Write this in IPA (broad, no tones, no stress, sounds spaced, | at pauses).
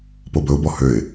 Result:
p o b ɵ ʊ̯ b ɔ h ø ɪ̯